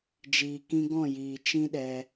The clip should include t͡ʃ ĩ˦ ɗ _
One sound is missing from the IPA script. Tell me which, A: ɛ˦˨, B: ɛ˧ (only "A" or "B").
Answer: B